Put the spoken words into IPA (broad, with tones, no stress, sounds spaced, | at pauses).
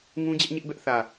ŋ ũ˦ d͡ʑ ɛ˦ ʔ ɲ ɪ˦ ʔ b ɛ˦ ʔ θ ä˨